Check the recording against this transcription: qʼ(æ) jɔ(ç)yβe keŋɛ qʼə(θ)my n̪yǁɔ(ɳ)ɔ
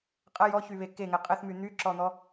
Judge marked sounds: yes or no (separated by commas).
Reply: no, yes, yes, no